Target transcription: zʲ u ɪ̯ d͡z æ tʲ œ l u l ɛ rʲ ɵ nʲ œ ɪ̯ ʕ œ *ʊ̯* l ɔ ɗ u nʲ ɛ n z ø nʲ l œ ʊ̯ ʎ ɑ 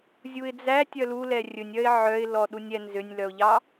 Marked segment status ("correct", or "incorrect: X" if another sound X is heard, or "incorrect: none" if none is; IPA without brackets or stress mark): incorrect: ɪ̯